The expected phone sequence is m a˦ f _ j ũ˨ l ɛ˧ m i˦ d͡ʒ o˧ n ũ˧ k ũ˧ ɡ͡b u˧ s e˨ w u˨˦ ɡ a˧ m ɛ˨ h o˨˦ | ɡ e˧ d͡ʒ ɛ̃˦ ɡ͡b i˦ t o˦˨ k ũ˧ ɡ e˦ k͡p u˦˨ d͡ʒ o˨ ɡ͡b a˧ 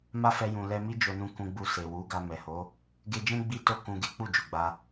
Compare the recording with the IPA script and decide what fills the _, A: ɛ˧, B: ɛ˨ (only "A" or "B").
A